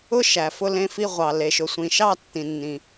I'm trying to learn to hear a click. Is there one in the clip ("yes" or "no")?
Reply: no